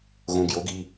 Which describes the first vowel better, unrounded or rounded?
rounded